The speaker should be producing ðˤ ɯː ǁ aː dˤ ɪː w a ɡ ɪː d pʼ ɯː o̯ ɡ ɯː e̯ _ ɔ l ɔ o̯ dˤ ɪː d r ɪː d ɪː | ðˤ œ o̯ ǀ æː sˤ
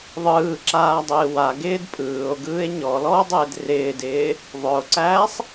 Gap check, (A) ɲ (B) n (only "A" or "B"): A